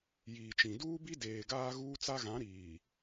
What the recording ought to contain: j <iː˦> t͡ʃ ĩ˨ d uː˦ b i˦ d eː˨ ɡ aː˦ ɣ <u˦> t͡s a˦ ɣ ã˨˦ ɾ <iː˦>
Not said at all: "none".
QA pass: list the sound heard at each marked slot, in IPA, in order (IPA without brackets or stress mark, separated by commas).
iː˨, uː˦, iː˨